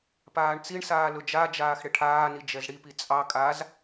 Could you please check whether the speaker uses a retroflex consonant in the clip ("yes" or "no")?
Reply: yes